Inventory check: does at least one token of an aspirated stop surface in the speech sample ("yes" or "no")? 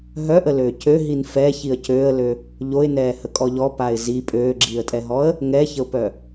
no